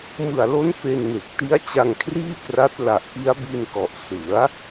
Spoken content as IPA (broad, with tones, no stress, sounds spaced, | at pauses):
m ɯ˨˩ a̯ l o˦˥ n p e˧ n m e˨˩ k̚ t i˦˥ a̯ t͡ɕ a˧ ŋ kʰ r iː˥˩ k r a˦˥ t̚ l a˨˩ ʔ p i˦˥ a̯ b i˧ n k ɔ˨˩ ʔ s ɯ˩˦ a̯